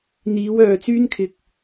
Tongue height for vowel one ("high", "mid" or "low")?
high